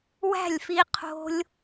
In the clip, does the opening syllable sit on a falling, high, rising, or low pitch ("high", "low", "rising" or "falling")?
falling